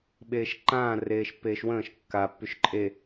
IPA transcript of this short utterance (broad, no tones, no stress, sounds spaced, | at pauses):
ɓ eː ʃ ǃ ãː r eː ʃ pː eː ʃ w ə̃ː ʃ kː a pː y ʃ ǃʼ e